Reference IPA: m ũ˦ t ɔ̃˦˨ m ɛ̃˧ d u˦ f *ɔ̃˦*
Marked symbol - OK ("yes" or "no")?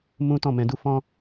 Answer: yes